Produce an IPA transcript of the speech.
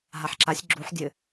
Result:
ɦaħǁasʲ ɡ͡ǁuħ dʲɘ

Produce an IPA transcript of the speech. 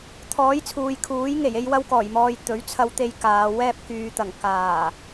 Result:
t̪ʰɔː˨˥jt͡sʰuː˨jkʰuː˨˥jŋe˨˩j e˥jwɐ˥wkɔː˨˩jmɔː˧j t̪ɵ˨˥ɥt͡sʰɐ˧wt̪e˧j kaː˨˧wɛː˥p̚ kyː˨˧t̪ɐ˨˩ŋ kaː˨˩

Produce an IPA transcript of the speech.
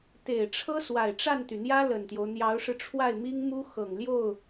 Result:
t̪e˨˩ɪ̯ʈ͡ʂʰɤ˥ swa˨˩ɪ̯ʈ͡ʂa˥˩nt̪y˩n̪jä˥ lə˨˩nt̪jo˦ʊ̯ n̪jɑ˧˥ʊ̯ʂɻ̩˧ʈ͡ʂʰwa˥˩ɪ̯mi˥ŋ mu˥ xɤ˨˩ŋljo˥˩ʊ̯

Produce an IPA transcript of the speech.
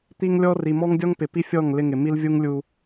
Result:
t̪i˦ŋlʲɔ˦ ri˨ mɔ˦ŋdʲɔ˦ŋ pɪ˨pi˦fʲɔ˦˨ŋ lɪ˦ŋɪ˨ mi˦lvʲu˦ŋlʲu˦

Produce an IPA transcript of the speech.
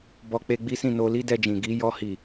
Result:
bɔ˧k͡pe˧ɡ͡bi˦sĩ˦˨ no˧li˦dɛ˧d͡ʒĩ˨ ɡi˧ jɔ˧hi˨

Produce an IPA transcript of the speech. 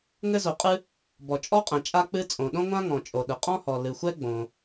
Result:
ŋɘ˥zo˩qʼɨ˥ | bɔ˩t͡ʃʼɔ˥qʼɛ̃˩ t͡ʃʼa˥k͡pɨ˥ t͡sʼõ˩ɗõ˥ŋʷã˥ŋɔ̃˩ t͡ʃʼo˩ɗɘ˩ qʼɔ̃˥hɔ˩ lɨ˩xʷɛ˥ɡ͡bõ˩

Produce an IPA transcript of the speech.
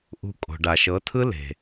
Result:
ʔṳ˧ kʼo̤˨ɖa˨ʃɤ˨˦tʰɯ˦ le̤˨

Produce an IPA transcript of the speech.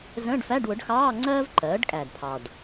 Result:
zə̃ː˧˥˧ɖfæ˧˥˧ɖwʊ˩˥ɖxɑː˧˥˧ ŋ͡ǀɜː˥vǃɜː˩˥ɖkʼæ˨˩dpʰɑ˨˩ɖ

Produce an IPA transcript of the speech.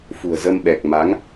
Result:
fṳ˨˩ə̯zə˧mɓɛ˨˩k̚ ma˨˦ŋ

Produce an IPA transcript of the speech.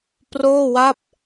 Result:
proː˥˩wa˥˩p̚

